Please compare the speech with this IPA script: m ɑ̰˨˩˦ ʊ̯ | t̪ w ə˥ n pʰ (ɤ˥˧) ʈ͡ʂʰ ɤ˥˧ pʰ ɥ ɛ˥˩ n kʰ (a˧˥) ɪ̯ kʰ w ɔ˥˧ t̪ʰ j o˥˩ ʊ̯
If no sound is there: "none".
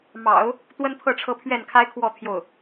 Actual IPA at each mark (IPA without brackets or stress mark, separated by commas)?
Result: ɤ˥˧, a˥